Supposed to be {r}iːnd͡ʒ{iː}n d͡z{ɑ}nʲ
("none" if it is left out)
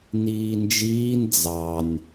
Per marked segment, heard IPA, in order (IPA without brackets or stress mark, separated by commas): n, iː, ɑ